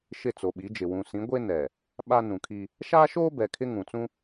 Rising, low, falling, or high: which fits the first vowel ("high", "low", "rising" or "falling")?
falling